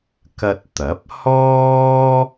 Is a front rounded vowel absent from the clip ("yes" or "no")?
yes